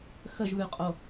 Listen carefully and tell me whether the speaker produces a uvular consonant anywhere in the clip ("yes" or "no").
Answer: yes